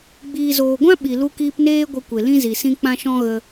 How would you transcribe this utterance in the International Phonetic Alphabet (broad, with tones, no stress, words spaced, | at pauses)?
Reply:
ɡ͡biː˨zoː˨ɡʷã˦ ɓi˨ lu˧kiː˧pneː˦ ɡʷə˧ kʷe˨ lĩ˦zi˨sĩ˦ k͡pã˦ʃɔ̃˦ ɣə˧